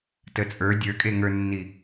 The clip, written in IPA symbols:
t ə t͡sʼ ə˞ dʲ ə˞ kʼ e ŋ ə˞ nː i

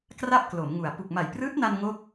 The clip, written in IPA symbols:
k r a˥˩ p̚ k l o˩˦ m ŋ u˨˩ a̯ p u˨˩ k̚ m a˨˩ j p r ɯː˦˥ t̚ n a˧ n ŋ o˥˩ k̚

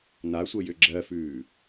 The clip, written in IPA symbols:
n a sʷ ə j ʏ ɡ͡ǁ ɜ f ʉː

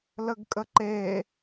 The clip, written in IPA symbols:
l ə ɡ kʼ ə ǃ e

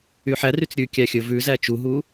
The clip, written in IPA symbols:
y ħ æ r y t͡s ɾʲ ʉ kʲ æ xʲ ɵ v ʉ z æ t͡ʃ u ɦ u

